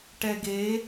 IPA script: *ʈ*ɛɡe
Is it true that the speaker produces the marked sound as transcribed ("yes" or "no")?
yes